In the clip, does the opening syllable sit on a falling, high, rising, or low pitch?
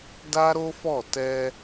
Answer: high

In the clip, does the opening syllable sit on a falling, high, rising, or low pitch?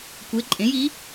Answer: rising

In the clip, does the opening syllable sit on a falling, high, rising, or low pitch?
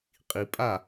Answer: low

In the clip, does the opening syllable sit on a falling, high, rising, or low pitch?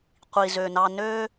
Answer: low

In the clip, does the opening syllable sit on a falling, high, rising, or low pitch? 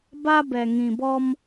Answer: high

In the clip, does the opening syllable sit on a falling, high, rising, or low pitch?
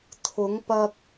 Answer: rising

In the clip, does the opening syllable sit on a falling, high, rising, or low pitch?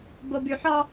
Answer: low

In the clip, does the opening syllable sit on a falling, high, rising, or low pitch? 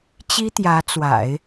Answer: high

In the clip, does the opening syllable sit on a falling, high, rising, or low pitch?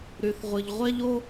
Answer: low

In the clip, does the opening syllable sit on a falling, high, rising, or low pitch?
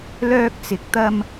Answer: high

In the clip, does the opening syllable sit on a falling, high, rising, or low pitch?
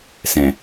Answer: low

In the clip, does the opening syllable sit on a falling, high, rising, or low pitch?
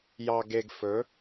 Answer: low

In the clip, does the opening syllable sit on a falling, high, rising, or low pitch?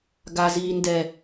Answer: low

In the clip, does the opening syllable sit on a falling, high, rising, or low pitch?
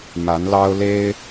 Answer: rising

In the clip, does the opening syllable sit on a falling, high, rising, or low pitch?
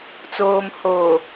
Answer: low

